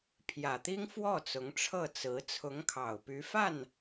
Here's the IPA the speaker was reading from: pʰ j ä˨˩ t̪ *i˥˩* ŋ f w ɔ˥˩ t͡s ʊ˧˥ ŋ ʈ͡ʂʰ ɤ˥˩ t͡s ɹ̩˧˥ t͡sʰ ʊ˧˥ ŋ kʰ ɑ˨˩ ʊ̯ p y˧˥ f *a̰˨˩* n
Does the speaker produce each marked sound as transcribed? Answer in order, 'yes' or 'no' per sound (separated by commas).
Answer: no, no